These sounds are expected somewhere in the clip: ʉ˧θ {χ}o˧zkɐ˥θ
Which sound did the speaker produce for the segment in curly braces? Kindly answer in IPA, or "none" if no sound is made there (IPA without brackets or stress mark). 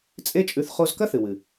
χ